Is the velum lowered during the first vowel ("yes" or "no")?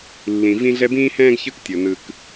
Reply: yes